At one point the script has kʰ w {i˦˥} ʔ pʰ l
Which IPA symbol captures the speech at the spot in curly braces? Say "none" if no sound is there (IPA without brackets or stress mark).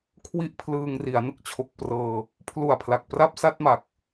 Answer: i˦˥